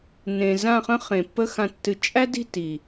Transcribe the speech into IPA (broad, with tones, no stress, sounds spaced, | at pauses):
n ẽ˨ z ã˦˨ χ ə̃˦ χ ẽ˨ pː ə˦ x ã˧ tː ɨ˧ t͡ʃʼ æ˦ d i̤˦˨ t i˨